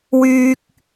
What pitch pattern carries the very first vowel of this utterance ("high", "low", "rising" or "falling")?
low